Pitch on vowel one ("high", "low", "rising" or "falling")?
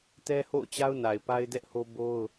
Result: high